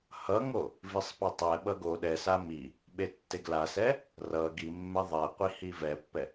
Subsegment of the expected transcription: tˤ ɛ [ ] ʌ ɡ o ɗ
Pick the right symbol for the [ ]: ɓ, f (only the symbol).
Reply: ɓ